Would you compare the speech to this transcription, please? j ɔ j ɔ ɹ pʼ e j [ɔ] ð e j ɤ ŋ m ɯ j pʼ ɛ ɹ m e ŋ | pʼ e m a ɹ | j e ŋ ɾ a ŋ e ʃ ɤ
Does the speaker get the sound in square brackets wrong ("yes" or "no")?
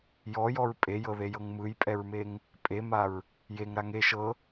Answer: yes